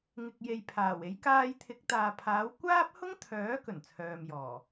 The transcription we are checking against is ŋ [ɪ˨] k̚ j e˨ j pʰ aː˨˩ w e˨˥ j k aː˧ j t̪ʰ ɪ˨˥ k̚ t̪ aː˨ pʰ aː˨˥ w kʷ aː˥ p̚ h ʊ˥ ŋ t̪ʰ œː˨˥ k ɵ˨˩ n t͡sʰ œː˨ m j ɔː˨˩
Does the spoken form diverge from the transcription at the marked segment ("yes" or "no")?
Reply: no